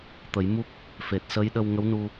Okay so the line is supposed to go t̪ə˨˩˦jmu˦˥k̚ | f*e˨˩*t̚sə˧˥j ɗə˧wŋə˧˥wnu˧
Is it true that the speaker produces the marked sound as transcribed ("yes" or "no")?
yes